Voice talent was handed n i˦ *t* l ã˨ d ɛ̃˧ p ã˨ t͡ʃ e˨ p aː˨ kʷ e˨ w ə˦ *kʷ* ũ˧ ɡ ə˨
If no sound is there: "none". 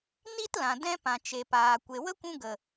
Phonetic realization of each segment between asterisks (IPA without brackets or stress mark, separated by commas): t, kʷ